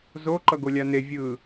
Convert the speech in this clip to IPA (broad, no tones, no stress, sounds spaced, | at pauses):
z o ǃ ʌ ɡ o lʲ a n e vʲ ɯ